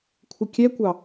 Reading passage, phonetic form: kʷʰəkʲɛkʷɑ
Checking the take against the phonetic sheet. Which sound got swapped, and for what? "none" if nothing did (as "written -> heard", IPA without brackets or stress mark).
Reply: ə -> ɪ